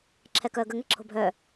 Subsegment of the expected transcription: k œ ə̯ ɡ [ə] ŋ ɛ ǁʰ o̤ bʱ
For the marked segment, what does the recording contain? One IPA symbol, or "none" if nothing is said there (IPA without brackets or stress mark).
ə